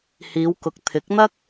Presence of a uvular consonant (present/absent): absent